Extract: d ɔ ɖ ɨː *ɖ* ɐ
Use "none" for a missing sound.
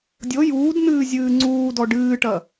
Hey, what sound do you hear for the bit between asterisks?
ʈ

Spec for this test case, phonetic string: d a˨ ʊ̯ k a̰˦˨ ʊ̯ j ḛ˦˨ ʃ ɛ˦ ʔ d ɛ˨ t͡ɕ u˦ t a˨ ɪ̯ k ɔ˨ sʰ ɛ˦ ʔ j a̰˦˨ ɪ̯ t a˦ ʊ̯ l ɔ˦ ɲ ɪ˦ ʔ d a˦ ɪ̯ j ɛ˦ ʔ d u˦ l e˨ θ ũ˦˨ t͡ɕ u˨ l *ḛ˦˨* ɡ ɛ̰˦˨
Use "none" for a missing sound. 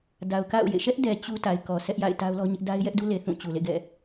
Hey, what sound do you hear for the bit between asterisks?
ḛ˦˨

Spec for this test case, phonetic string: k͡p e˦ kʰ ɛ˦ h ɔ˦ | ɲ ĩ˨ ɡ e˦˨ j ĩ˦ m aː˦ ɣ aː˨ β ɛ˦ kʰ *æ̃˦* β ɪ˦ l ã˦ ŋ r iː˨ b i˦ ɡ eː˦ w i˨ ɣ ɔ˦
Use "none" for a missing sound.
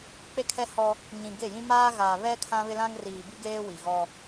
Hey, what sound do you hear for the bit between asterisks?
ã˦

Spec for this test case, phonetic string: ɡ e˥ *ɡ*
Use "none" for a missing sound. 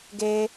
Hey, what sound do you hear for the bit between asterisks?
none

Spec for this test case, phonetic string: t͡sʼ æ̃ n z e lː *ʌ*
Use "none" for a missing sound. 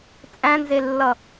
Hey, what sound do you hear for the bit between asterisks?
ʌ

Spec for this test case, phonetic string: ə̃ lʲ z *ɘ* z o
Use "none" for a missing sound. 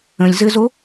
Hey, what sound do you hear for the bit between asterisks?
ɘ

